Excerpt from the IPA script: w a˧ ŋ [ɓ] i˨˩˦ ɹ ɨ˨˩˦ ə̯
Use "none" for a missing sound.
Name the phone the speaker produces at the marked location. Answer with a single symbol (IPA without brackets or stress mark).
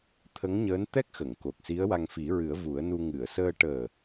f